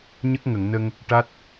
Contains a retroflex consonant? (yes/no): yes